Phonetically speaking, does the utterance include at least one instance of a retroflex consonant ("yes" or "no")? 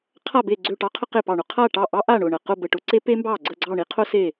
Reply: yes